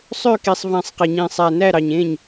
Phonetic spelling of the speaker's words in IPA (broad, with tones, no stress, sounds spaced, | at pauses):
sˤ ø˥˧ k i˧ sˤ v æ̃˧ sˤ q e˧ ɲ ĩ˧ sˤ æ˧ n æ˥˧ ɾ ɑ˧ ɲ ẽ˥˧ ɲ